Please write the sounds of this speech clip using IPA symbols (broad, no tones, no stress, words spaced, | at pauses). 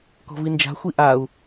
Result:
kɔ̤vind͡ʒa̤ xʷiʔau̯